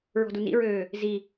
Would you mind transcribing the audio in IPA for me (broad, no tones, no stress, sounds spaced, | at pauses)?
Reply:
ɹ ɔ̤ d u n ḭ ɹ øː | z i